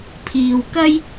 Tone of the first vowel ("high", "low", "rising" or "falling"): low